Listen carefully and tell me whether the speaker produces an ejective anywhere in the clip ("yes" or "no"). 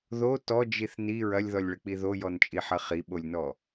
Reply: yes